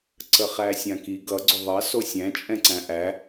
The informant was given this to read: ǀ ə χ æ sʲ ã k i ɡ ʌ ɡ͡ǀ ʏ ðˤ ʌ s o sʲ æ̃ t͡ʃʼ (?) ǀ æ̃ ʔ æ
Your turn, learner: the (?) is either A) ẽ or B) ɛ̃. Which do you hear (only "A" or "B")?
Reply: B